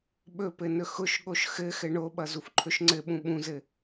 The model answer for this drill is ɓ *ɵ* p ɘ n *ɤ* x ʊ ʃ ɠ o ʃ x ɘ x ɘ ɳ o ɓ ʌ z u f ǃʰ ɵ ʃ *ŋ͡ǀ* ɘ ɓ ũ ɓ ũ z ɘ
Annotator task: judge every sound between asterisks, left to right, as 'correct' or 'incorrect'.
correct, incorrect, correct

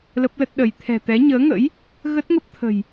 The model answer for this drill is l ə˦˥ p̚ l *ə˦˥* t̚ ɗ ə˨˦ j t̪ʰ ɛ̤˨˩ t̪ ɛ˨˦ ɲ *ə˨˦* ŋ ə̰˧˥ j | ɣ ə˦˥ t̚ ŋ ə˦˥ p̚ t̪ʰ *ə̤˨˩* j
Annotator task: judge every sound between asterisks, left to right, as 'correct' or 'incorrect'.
correct, incorrect, correct

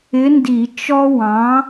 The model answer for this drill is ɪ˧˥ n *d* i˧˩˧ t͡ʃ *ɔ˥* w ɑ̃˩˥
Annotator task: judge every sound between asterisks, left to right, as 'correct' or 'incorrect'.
correct, correct

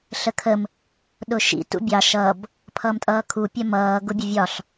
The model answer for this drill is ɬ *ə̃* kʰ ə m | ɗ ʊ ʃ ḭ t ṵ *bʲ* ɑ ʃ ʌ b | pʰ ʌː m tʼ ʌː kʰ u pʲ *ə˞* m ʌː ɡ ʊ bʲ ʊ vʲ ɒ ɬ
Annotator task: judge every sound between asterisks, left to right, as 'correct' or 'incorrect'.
incorrect, correct, incorrect

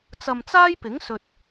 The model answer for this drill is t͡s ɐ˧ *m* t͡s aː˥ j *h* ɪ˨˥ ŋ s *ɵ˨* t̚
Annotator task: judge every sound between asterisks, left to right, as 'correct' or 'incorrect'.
correct, incorrect, correct

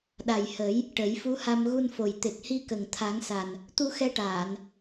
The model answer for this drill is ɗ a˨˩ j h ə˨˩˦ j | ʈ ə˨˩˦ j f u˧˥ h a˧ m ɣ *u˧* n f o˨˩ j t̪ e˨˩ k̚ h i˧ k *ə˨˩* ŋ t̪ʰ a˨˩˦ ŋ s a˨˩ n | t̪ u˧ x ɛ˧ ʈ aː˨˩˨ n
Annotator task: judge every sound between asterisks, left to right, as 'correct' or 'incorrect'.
correct, correct

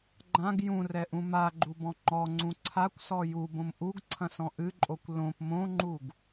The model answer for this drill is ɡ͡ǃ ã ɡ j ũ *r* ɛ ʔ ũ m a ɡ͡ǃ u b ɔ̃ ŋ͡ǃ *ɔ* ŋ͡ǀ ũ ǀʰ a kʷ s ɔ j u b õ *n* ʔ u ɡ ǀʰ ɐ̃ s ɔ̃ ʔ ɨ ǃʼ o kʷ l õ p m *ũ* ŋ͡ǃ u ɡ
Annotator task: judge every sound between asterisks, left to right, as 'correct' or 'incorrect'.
correct, correct, incorrect, incorrect

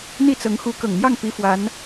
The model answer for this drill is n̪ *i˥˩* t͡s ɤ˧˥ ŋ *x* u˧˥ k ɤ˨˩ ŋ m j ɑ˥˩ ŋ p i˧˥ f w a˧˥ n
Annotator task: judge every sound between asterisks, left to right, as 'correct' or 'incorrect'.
correct, correct

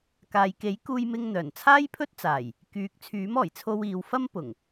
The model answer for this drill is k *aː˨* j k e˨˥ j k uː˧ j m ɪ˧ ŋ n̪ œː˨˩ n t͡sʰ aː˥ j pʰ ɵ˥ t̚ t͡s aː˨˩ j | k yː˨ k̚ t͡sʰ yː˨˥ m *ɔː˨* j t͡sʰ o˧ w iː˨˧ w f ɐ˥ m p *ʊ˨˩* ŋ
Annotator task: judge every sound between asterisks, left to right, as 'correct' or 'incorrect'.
correct, incorrect, correct

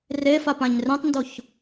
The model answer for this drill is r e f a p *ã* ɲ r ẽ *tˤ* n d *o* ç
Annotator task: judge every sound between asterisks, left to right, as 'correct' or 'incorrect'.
correct, correct, correct

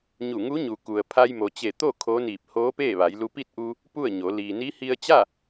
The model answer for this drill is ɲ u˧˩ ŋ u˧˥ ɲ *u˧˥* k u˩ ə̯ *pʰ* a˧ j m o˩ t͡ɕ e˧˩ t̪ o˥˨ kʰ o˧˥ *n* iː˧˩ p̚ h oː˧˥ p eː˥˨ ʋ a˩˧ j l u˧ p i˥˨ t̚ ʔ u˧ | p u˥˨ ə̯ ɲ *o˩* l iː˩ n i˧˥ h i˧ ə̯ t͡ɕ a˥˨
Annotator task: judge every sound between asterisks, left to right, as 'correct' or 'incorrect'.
incorrect, correct, correct, incorrect

